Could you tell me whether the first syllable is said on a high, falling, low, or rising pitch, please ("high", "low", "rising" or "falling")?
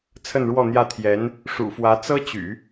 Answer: falling